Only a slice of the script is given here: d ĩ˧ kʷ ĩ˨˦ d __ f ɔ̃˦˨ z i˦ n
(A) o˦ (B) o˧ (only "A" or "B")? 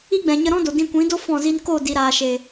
A